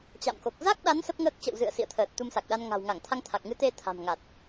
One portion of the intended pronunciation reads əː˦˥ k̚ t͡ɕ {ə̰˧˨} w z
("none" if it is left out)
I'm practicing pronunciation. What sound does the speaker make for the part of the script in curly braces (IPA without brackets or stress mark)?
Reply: ə̰˧˨